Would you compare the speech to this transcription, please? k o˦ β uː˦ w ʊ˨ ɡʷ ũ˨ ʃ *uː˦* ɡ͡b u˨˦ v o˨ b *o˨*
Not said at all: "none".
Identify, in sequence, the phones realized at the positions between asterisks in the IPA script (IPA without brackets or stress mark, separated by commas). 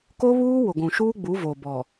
uː˦, ɔ˨